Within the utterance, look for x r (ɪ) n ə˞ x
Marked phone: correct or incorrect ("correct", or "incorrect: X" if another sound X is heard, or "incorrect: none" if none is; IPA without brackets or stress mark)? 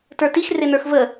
correct